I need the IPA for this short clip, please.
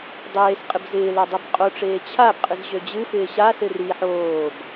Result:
dˤ eː s qʼ ɪ b z ɪː l a dˤ i b qʼ o ʈ͡ʂ eː t͡ɕʰ a b qʼ ɨ z ʑ ø d͡ʑ ɨ f ɪː ɕ a s ɪ r i ħ oː b

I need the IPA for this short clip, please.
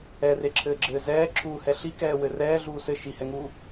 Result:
ɛ r e ǁʰ ɘː ɡ͡ǁ ɘː z ɛː ǁʰ uː h ɛ ɬ i k ɛː w ɘ r ɛː ɮ uː s ɘ ʃ i h ɛ ŋ uː

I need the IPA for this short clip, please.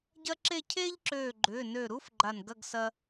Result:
ɟ ɐ˥ ǁ e˥˧ cʰ eː˥ ʎ ǁ øː˧˩ ɡ͡ǃ ʏː˩˧˩ n ø˧˩ ɾ u˥ f ɡ͡ǃ a˧˩ n ɡ ɐ˥˧ ɡ s ɐ˥

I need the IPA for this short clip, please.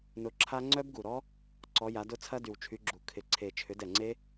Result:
n ʊ˨˦ ǁʰ a˦˥ ŋ͡ǀ œ˦˥ b ɡ u˨˩ ɾ ɔ˦˥ | ǀ ɔ˨˦ j a˨˦ d ʊ˦˥ t͡sʰ ɐ˦˥ d y˨˩ w t͡ʃʰ y˨˦ ɡ͡ǁ u˨˩ kʰ ɪ˨˩ ǀʰ e˨˩ t͡ʃʰ ʏ˨˦ d ɛ˨˩ ŋ͡ǀ e˦˥

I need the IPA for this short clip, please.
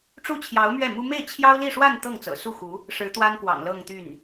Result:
ʈ͡ʂ u˥˩ t͡ɕʰ j ɑ˧˥ ʊ̯ m ɥ ɛ˥˩ m u˥ m e˥˩ ɪ̯ t͡ɕʰ j ɑ˥ ʊ̯ l i˥˧ ʂ w a˥˧ n t̪ ɤ˥˩ ŋ t͡s ɤ̰˨˩ s u˥˩ x u˧˥ | ʂ ɻ̩˧˥ t̪ w a˥ n k w ɑ̰˨˩ ŋ l ɤ˥˧ ŋ t̪ y˥˩ n

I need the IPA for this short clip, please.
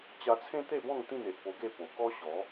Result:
t͡ɕ a˧ t͡sʰ ẽ˦ t̪ e˥˧ b ɔ̃˥˧ ŋ t̪ ĩ˥˧ n e˨ ʔ p o˧ ɡ e˥˧ p o˨˩ k ɔ˦ ɕ ɔ˨˦

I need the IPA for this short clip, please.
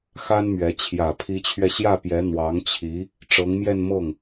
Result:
x a˥ n m ɥ ɛ˧˥ t͡ɕʰ j ä˨˩ pʰ i˧˥ t͡ɕʰ ɥ ɛ˧ ɕ j ä˥˩ p j ɛ˧˥ n̪ w ɑ˧˥ ŋ t͡ɕʰ i˧˥ | ʈ͡ʂ ɤ˧˥ ŋ m j ɛ˥˧ n m ɤ˥˩ ŋ

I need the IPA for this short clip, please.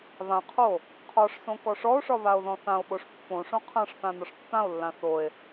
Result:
β ã qʰ o | qʰ ɒ ʂ s õ k ɔ ʂ ɔ o̯ ʂ ɒ β a o̯ ð ɔ̃ θ ã o̯ ɓ o ʂ pː õ ʂ õ qʰ ã ʂ θ ã n ɒ ʂ tː ã o̯ lː ã θ o e̯

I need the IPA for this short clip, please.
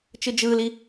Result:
t͡ʃ ɯ d͡ʒ ɯː l i

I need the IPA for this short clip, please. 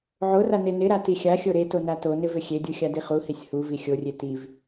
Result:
ʕ o r a n e n ɪ ɾ a t i xʲ a xʲ o ɾ e t o n a t o n ɪ v ɪ xʲ e dʲ u xʲ a d i χ u h i sʲ h u v i xʲ o rʲ e t i v

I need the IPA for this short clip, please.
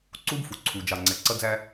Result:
ǀ u˦ b f u˨ ǀʰ u˨ d͡ʒ ɑ˨ ŋ͡ǀ ɛ˨ ǀ ʌ˦ d͡z æ˦

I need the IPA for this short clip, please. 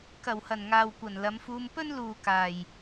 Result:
k ɐ˨˩ w h ɐ˨˩ n ŋ aː˨ w kʷ ɐ˨˩ n l ɐ˨˧ m f uː˧ m p ɵ˥ n l uː˨ k aː˨˩ j

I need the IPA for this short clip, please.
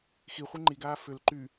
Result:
x i χʷ i ŋ͡ǃ i ɡ aː f ʏ l ǃ y

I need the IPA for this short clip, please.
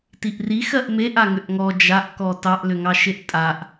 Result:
t i ʔ r i x ɜ ʔ m e ʔ a ŋ ʏ ʔ ŋ ɔ d͡ʒ a ʔ k ɔ t ɑ ʔ l ʏ ŋ ɑ ʃ e ʔ tʼ a ʔ

